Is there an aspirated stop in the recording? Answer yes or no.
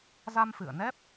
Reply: no